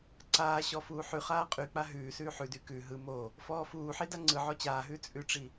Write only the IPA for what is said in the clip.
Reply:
ǀ aː ɕ ɔ f uː ħ ʉ χ aː qʼ y k͡p a ɦ ʉː s ʉː ħ ʉ d y k ʉ ɦ ɯ m o | f ɔː f uː ħ i d a ŋ͡ǀ ɯ ʕ ɔ t͡ɕ aː ɦ ʉː t͡sʼ ʉ ʈ͡ʂ i

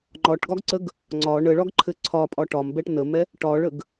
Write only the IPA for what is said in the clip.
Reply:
ŋ͡ǃ ɒ ʈ ɡ ɒ ɡ ǀ ə ɡ | ŋ͡ǀ ɒ ɳ ə ɭ ɒ ɡ ǃʰ ɘ ǀʰ ɒ pʼ ɒ ʈ ɒ m b ɛ ʈ n ə m ɛ | ʈ ɒ ɭ ə ɡ

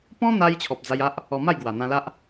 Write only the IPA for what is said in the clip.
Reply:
p ɔ̃˦ n̪ a˧ j t͡ɕʰ ɔ˨ p̚ d͡z a˧ j a˦ ʔ | ɔ˧ m a˥˧ j ɡ w a˨˩ n̪ ã˧ l a˦ ʔ

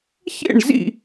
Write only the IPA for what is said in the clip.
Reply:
ç ḛ˥˩ ɳ z ḭ˥˩

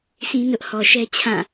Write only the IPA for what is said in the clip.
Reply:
s ĩ˦ n ʊ˦ ʔ h ɔ˨ ʃ ɛ˦ t͡ɕʰ ã˦˨

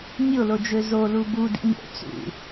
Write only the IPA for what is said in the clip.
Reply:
nʲ o l o d͡ʒ ø z o l u b u d ḭ ɲ o̰ t͡s ṵ

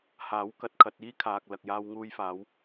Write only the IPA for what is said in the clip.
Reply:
h aː˨˥ w k ɐ˨ t̚ kʰ ɐ˧ t̚ iː˥ kʰ aː˨ k̚ l ɐ˨ k̚ j aː˧ w ŋ uː˧ j f aː˨˧ w

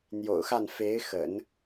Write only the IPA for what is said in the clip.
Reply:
n̪ j o̰˨˩ ʊ̯ x a˥˩ n f e˧˥ ɪ̯ x ə̰˨˩˦ n

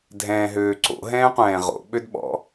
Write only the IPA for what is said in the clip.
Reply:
dʱ ɛ̃ː ɦ øː ǀ o̰ ɦ ɛ̃ː qʷ ɛ̃ː ʁ o̰ ɓ ø d ɓ ɔ̰

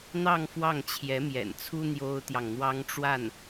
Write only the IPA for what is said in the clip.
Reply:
n̪ ɑ˥˧ ŋ f w ɑ˥˩ ŋ t͡ɕʰ j ɛ˧˥ m j ɛ̰˨˩ n t͡sʰ u˥ n̪ j o˥ ʊ̯ t̪ j ɑ˨ ŋ n̪ w ɑ˥ ŋ ʈ͡ʂ w a˥˩ n

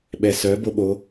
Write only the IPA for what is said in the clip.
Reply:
ɓ ɛ s œ b o ɓ o

